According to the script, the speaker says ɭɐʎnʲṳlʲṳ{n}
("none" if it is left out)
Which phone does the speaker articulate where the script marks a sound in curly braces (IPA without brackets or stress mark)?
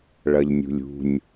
nʲ